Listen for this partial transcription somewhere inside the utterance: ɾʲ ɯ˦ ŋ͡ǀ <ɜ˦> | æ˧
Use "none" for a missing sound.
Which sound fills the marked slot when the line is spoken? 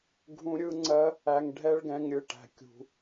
ɜ˦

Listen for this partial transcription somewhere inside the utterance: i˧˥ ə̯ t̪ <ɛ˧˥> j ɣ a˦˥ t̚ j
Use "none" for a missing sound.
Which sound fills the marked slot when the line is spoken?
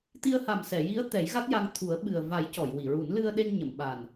ɛ˨˩˦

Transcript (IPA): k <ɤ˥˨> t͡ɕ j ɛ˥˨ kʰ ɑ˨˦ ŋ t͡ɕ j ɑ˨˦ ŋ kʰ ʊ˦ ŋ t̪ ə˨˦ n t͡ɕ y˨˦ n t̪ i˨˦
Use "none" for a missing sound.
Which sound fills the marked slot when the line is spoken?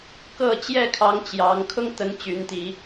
ɤ˥˨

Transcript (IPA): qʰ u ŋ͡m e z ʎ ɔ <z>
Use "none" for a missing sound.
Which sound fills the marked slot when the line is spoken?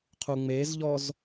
z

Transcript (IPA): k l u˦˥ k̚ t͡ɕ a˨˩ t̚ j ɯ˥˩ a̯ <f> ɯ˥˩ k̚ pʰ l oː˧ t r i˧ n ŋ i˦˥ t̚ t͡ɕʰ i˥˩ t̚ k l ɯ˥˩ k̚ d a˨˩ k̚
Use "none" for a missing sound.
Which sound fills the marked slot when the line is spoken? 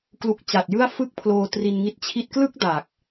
f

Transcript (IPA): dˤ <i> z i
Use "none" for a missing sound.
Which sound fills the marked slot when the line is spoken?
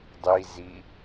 i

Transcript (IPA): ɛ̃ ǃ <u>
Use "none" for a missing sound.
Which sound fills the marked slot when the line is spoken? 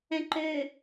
ø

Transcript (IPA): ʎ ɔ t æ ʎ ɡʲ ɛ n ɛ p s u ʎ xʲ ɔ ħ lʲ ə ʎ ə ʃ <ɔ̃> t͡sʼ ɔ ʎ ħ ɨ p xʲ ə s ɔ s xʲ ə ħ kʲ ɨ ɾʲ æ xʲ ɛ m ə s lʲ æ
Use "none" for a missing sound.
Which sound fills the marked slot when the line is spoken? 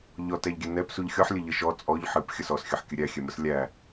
ɔ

